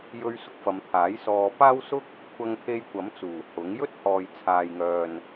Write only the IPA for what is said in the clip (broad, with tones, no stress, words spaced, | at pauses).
jɵ˧ɥ sʊ˨k̚fɐ˨˧mt̪ʰaː˨˥j sɔː˨ paː˥wsʊ˥k̚ | kʷʰɐ˧ŋt̪ʰe˧jkʷɐ˨˥mt͡suː˨˩ hʊ˨˥ŋ jɵ˥t̚hɔː˨jt͡sʰaː˨jŋœː˨n